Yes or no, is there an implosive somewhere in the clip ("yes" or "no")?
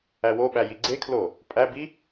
yes